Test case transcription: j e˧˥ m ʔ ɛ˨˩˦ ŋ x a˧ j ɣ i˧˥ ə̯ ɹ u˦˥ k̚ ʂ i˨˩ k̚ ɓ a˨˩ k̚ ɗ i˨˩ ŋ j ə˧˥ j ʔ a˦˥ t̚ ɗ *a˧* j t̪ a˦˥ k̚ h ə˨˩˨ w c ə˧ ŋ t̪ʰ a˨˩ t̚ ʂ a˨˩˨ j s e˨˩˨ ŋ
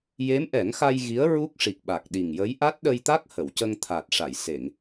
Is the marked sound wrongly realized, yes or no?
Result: yes